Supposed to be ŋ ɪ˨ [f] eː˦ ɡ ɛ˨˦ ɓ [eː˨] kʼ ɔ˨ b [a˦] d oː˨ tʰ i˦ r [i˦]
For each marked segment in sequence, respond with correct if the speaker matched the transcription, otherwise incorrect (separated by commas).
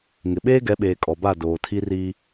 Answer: incorrect, correct, incorrect, incorrect